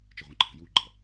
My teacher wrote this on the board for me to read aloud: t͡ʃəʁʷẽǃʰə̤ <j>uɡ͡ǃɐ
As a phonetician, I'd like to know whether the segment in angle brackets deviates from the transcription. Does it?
no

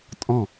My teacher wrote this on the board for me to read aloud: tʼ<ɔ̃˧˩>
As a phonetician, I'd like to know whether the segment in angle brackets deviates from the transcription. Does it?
no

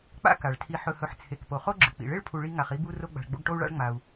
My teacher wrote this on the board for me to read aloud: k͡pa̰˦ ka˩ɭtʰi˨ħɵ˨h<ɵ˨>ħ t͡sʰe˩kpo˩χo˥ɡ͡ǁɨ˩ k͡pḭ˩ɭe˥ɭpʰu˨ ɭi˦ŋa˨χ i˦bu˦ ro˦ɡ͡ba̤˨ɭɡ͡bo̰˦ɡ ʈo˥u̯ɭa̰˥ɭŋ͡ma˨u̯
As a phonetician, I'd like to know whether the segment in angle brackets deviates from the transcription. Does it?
no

